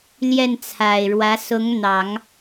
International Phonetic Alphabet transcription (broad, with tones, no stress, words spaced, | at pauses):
ljɛ˥˩nt͡sʰa˨˩ɪ̯ɻwä˧˥ sʊ˧˥ŋn̪ɑ˨˩˦ŋ